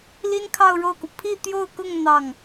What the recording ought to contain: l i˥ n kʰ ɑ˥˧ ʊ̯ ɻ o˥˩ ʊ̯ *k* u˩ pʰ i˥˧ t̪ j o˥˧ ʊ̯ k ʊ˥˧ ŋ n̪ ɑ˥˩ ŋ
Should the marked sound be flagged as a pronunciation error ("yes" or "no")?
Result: no